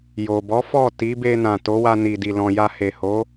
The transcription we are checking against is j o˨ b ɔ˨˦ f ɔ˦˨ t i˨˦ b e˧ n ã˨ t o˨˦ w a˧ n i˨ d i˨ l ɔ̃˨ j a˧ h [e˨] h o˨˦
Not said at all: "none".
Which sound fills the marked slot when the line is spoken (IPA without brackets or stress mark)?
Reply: e˨